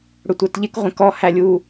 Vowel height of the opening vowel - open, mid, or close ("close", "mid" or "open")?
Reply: close